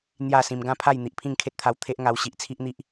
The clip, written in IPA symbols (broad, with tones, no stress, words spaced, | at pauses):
n̪ja˥˧ sĩ˧m ɡã˥˧pʰa˥˧j n̪i˨ʔpʰĩ˥˧ŋkʰe˦t̚t̪ʰa˧w t̪ʰe˦ʔ ŋa˧wɕi˨ʔt͡sʰi˦ʔn̪i˦ʔ